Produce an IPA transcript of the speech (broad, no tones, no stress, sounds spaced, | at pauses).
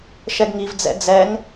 ʃ ɛ ɡ ŋ i v d͡z ɛ̰ d͡z ɛ ŋ